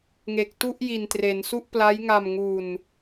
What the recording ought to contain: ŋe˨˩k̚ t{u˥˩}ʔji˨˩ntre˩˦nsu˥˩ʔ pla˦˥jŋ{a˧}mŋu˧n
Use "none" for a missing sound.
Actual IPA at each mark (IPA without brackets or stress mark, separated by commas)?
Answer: u˥˩, a˧